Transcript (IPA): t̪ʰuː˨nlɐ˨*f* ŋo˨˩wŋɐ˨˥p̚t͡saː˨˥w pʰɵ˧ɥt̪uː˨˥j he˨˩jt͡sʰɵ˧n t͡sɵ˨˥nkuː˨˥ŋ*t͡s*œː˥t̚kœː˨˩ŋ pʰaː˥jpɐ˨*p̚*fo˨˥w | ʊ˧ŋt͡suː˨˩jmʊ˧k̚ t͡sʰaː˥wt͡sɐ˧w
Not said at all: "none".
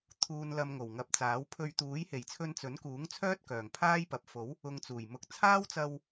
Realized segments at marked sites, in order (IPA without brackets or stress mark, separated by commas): m, t͡sʰ, p̚